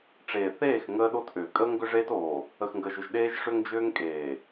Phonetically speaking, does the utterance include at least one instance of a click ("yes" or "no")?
no